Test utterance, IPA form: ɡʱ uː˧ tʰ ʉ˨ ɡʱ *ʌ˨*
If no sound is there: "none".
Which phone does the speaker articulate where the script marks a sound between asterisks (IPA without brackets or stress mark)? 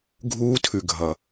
ʌ˨